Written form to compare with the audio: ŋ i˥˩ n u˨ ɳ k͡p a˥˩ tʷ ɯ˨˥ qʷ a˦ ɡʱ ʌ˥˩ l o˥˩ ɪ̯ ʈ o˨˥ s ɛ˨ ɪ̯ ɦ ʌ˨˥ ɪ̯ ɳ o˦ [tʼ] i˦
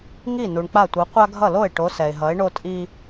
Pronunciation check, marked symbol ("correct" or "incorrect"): correct